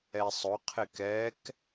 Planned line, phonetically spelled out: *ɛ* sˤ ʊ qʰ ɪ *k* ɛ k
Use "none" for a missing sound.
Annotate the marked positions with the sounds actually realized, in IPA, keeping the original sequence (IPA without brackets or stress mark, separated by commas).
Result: ɛ, k